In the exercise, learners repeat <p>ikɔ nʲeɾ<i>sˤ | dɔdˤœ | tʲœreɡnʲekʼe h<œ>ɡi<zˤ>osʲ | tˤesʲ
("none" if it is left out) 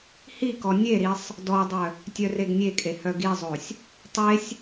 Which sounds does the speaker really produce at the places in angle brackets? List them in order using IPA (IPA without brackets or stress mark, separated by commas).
h, i, œ, zˤ